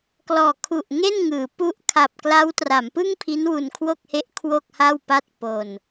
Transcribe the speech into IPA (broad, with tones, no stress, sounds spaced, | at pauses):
k l ɔː˨˩ kʰ u˨˩ ʔ ŋ e˥˩ n ŋ ɯː˩˦ p u˥˩ ʔ kʰ a˨˩ p̚ k l a˦˥ w t r a˩˦ m p ɯ˥˩ ŋ pʰ i˦˥ n w u˧ n kʰ w o˥˩ k̚ h e˦˥ ʔ kʰ w o˥˩ k̚ h a˥˩ w p a˥˩ t̚ p o˧ n